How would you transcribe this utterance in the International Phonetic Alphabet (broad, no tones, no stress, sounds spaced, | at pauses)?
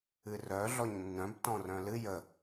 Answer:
ɨ r œ ɮ ɔ ɲ nː œ̃ b t ɔ̃ r œ̃ l ɨ j ə